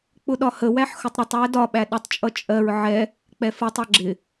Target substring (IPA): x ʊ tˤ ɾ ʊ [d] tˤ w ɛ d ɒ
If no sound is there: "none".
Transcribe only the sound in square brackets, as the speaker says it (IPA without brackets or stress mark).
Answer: none